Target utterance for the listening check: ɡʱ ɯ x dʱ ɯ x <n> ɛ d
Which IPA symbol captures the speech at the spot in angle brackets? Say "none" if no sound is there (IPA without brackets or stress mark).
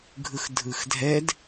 dʱ